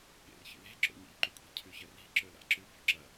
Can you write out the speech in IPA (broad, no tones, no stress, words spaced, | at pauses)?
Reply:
ɠḛrçḭle̤ ǁo̰ɲḛʎǃʉkʷʼe̤ cʰʉçɐri̤ ǁɵla̰ǁʉ bo̤ǁɐ